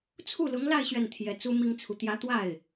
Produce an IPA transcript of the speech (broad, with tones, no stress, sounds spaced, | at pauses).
t͡sʰ u˥˩ l ʊ˧˥ ŋ l a˥˧ ɪ̯ ɕ ɥ ɛ˥˩ n t̪ʰ j ɛ˧˥ t͡s u˥ m i˥ ŋ t͡sʰ u˨ t̪ j ä˧˥ t̪ w a˥˩ ɪ̯